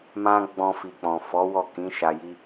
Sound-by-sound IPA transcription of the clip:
m ã˦ ɡ͡b ɔ̃˧ f i˨ k͡p ɔ̃˨ f ɔ˨˦ w ɔ˦˨ k ĩ˨˦ ʃ a˧ j i˦

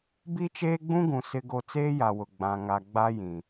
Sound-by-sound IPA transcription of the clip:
b i˦ t͡ʃ eː˦ ɡ͡b ũ˦ ɡ ũ˨ s ɪ˦ ɡ o˦ t͡s eː˦ j a˨ w ʊ˨ ɡ͡b ã˨ ŋ a˨ ɡ͡b a˦ j ĩ˨

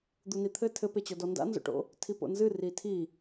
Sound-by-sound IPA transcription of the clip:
d̪ u n i t̪ʰ ɘ tʰ ɘ p e t͡ɕ ɔ d ɔ n d a̰ n z o̰ ʈ o̰ | tʰ i p o̰ n z ɨ r i tʰ i

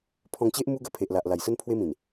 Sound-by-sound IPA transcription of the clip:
pʰ ɔ̃˧ ŋ t͡ɕ e˦ ʔ m u˦ ɡ ə˧ pʰ e˨ ʔ l a˨ ʔ l a˨˩ j s ə˦ n pʰ w e˦ m ĩ˨˩ n

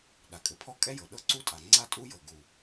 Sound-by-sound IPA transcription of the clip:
ɗ a˩ kʼ ɘ˩ pʰ ɔ˥ kʼ ɛ˥ j ɤ˩ ɗ ɤ˥ ǀ u˥ tʼ a˩ ŋ͡ǀ a˥ tʼ u˥ j ɤ˩ ɡ u˩

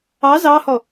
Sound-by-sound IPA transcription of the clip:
ɑ z ɑ h ɔ

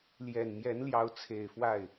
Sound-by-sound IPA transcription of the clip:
l j ɛ˨˩ n m j ɛ˧˥ n l j ɑ˧˥ ʊ̯ t͡sʰ e˨˩ ɪ̯ f w a˥˩ ɪ̯

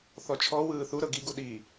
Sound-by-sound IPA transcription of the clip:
θ ɔ t͡ʃʰ ɔ w ɯː θ u ɾ ɤ ɡ i ɡ u ɗ i

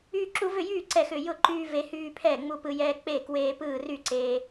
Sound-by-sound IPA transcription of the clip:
yː˦ ǁ u˦ v ʏ˥˨ j yː˥˨ ǀ ɛ˥˨ x ʏ˥˨ j ʊ˥˨ ǃ yː˦ v e˦ h yː˦ pʰ ɛː˥˨ ŋ͡m u˦ p ɯ˦ j ɛː˦ k͡p e˥˨ k w eː˦ p ɯː˥˨ r y˥˨ ǀ eː˦

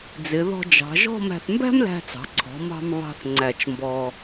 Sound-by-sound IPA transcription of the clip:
d͡z ɪ˩˧ ð ɔ̤˧ d͡ʒ ɑ̤˩˧ ʒ ɔ̤˥˧ m æ̤˧ θ m b æ̤˥ m l æ̤˧ t͡s ɑ̤˩˧ ǀʰ ɔ̤˩˧ m ɑ̤˧ m β ɑ̤˥ θ ŋ͡ǀ æ˧˩ t͡ʃ m b ɔ˧

